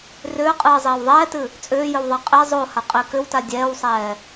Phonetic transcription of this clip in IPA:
rʏːqʼɨːzˤeːw ðˤɛːtɨ | t͡sʼʏːjʏwðˤa qʼe zˤohaqʼe kʏwta dʲɛːwsˤɛː

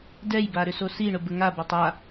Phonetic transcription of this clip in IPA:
dɛjba ɾʏsosiɳʊ bəŋabatˤ a

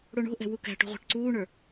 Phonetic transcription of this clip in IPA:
ɽoɳo̤ʔɛ̤ wukæ̤ʈo̤ ʁʷæ̤ʈǀuːɳə˞

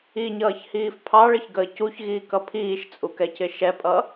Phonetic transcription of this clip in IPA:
iɲʌːçhiːf pʰɑɭəçɡəː cuçɣiːkʌ pʰiːʃt͡sʼukɛcɪ ʃɛpʼʌ

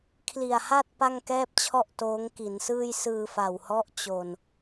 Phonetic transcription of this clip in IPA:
kʰli˨˩a̯ha˥˩t̚ pa˥˩ŋkɛː˥˩p̚t͡ɕʰɔ˥˩ʔ toː˦˥ŋki˩˦nsɯː˥˩j sɯː˧fa˨˩whɔ˦˥ʔ t͡ɕo˨˩n

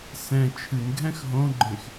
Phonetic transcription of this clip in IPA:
sɛ̃ t͡ʃʰɨnɡʱɛ̃x ɦõɡ͡ǃẽx

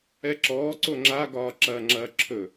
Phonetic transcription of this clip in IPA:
ɛǁɔː ǀoŋ͡ǁaɡɒː ǁɐːŋ͡ǁɐːǁʰɵ

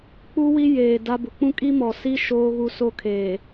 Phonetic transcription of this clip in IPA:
k͡pu˦wi˦ jeː˨da˦bʊ˨ k͡pũ˦kʼi˦ mɔ˨si˦ ʃoː˦ɣu˦so˦kʰeː˨

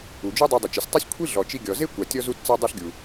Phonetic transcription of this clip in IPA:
u˩d͡ʒu˥dˤi˧ dˤɪ˩t͡ʃɪ˩sʲtˤe˥sʲ kʷʰi˥ ɮɔ˩t͡ʃi˧ɡʲɔ˩ ze˥kʷa˩tʲɔ˧ zu˧tt͡sa˧dˤo˧ɬɡʲu˩

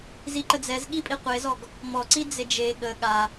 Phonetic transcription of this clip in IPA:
ziǃəd͡zɛzɠi pʼiqʷezɔɡ | mɔ ǀid͡zed͡ʒe ɠə ɠa

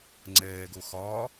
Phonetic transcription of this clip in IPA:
ŋ͡ǀɛːɡo xɒː

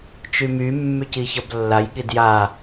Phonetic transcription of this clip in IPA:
t͡ʃymy mːyciçʌblːaj ɠidja

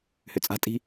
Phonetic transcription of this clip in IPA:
hʏt͡sʼa̤tʼi̤

